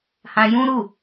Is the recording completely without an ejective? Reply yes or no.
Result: yes